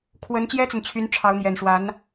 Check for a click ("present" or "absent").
absent